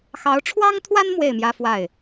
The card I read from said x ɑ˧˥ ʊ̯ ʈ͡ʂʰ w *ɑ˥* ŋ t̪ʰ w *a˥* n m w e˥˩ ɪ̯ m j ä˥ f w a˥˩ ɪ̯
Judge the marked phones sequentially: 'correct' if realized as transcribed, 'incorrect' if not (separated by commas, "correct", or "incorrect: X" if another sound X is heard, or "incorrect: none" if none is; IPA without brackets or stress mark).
correct, correct